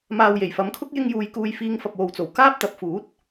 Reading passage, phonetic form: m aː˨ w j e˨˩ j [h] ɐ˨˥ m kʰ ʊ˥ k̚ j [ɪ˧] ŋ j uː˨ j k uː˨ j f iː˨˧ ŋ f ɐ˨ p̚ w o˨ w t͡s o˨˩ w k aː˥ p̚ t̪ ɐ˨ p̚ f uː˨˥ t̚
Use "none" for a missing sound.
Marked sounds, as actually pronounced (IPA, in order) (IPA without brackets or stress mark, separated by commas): f, ɪ˧